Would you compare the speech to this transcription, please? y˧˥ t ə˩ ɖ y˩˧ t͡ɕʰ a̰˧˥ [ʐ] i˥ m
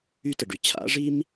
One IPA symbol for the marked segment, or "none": ʐ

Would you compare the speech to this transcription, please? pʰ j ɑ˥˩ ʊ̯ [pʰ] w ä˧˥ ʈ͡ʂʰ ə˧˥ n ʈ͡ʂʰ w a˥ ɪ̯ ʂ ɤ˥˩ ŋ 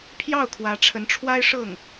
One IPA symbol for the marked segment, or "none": kʰ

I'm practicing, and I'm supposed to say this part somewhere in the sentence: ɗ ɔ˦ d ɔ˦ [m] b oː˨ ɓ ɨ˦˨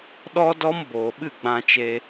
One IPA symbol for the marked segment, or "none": m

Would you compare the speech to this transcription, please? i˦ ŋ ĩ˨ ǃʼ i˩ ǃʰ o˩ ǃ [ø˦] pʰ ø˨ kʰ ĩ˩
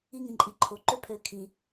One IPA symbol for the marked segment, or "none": ø˦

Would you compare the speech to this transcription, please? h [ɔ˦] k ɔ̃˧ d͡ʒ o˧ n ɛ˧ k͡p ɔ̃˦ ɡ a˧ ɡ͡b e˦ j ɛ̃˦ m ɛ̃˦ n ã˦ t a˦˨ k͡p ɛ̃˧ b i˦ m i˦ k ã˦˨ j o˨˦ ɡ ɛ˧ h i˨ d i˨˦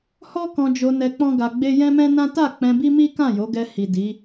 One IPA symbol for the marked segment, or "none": ɔ˦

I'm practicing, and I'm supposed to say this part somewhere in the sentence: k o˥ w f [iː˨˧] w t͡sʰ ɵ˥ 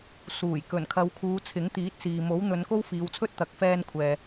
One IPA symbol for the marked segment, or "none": iː˨˧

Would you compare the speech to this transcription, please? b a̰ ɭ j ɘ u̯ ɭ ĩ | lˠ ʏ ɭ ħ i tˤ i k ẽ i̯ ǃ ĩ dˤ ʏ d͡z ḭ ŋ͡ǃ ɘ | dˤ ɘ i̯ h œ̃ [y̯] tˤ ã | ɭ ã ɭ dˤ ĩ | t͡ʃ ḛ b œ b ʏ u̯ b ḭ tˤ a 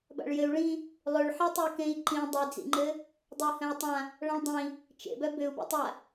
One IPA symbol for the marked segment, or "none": y̯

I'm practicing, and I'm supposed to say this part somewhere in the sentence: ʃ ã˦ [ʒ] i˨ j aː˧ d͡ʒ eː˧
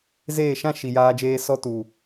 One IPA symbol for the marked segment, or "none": ʃ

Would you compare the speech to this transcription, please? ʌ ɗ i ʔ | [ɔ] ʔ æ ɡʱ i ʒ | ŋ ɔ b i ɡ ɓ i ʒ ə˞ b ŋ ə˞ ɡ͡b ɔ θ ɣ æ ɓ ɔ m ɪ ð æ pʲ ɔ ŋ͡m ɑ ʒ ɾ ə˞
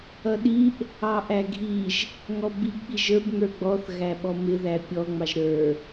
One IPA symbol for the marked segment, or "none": ɑ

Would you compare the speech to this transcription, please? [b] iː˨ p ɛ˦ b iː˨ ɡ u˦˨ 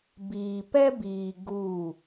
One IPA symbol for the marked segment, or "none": b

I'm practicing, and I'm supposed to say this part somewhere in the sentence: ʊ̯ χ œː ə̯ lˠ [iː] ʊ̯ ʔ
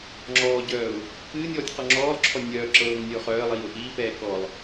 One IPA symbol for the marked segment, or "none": iː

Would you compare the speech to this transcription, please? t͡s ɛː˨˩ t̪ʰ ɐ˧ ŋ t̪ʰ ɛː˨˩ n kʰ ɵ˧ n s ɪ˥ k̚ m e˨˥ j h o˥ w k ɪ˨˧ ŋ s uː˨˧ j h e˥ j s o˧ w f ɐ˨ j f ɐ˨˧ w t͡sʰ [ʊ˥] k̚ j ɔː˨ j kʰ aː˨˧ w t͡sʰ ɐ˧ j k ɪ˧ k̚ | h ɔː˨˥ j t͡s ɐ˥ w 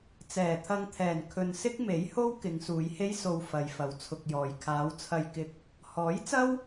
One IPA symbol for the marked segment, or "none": ʊ˧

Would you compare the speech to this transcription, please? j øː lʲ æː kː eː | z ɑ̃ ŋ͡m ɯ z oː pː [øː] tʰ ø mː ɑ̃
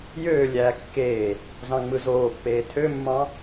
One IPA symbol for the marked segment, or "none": eː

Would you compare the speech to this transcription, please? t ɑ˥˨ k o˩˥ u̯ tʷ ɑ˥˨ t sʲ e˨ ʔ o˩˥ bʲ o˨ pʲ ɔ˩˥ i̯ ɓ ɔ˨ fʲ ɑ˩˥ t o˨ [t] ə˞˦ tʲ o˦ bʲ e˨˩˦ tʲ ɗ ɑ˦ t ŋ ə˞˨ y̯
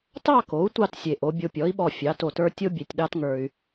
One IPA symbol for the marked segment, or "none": t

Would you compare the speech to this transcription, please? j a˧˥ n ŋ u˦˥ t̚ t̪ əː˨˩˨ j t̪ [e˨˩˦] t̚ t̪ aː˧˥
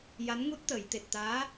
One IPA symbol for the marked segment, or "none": e˨˩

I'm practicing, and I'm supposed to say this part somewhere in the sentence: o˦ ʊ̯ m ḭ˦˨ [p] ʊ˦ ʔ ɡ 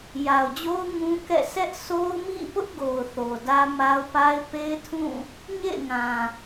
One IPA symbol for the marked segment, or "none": p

